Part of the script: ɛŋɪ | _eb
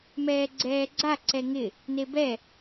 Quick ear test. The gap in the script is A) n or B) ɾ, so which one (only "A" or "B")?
A